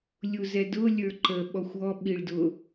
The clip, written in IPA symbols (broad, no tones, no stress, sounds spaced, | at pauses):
lʲ u z ɛ d ʊ lʲ ə˞ ǃ ə ɓ ɔ xʷ ɔ ɓ i ɭ d ʊ